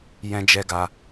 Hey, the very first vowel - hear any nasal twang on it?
yes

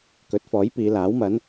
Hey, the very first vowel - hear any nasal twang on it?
no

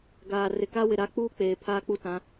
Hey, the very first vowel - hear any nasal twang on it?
no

